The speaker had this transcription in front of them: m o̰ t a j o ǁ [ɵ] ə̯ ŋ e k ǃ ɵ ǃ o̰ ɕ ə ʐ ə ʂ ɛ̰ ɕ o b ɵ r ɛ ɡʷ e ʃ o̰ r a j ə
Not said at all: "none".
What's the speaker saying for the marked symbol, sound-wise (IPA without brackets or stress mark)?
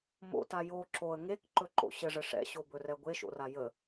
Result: o